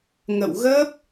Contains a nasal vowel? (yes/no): no